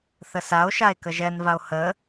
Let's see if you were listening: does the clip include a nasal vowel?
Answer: no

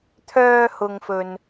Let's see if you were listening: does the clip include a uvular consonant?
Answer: no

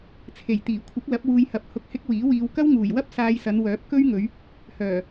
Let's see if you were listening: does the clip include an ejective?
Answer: no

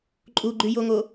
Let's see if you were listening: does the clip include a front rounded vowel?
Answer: yes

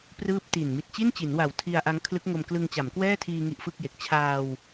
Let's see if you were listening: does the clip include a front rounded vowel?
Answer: no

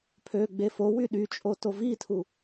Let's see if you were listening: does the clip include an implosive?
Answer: yes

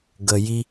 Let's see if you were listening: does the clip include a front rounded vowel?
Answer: no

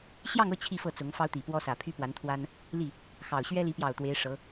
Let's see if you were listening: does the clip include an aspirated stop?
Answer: yes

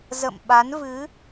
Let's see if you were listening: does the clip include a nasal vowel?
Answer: no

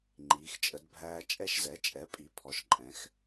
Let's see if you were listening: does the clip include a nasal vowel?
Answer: yes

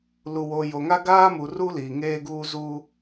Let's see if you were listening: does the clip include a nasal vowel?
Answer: no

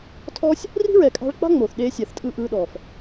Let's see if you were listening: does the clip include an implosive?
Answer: yes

